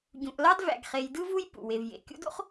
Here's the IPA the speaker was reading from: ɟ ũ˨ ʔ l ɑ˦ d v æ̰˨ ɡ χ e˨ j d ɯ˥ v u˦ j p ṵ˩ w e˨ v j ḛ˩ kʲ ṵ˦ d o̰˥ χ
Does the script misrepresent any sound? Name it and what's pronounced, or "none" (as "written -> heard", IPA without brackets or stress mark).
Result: none